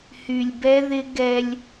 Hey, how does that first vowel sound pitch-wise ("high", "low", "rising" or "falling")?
low